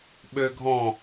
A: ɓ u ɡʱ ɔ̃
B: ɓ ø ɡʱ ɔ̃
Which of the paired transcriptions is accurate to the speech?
B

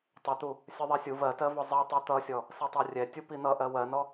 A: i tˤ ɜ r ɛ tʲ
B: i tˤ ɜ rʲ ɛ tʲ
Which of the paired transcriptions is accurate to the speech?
B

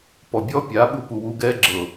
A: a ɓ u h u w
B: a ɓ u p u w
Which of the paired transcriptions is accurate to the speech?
B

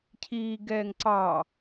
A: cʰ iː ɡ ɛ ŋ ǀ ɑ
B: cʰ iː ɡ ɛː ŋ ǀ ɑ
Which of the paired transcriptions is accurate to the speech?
B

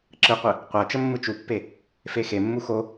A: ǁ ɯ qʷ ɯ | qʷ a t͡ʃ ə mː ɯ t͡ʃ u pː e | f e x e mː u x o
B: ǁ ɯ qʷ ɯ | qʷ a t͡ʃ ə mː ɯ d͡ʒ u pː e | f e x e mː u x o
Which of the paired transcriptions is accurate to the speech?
A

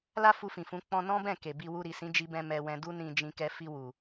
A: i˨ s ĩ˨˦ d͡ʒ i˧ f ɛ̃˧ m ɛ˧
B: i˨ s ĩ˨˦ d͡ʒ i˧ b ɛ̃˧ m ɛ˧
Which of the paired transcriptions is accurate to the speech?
B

